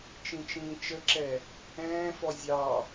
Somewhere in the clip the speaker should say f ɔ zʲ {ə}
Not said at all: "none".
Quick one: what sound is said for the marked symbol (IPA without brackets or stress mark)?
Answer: ɑ